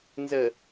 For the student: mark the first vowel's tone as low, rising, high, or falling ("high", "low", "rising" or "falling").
low